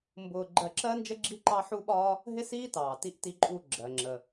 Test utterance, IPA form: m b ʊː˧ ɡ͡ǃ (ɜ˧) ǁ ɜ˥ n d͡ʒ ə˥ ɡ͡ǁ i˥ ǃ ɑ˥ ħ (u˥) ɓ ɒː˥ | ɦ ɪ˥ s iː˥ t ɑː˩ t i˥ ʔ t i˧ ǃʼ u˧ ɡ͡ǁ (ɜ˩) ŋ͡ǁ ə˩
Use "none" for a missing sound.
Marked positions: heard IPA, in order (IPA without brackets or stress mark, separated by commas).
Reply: ɜ˧, u˥, ɜ˩